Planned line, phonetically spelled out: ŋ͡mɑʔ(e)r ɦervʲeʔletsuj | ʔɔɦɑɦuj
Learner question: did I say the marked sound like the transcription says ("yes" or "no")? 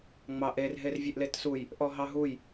yes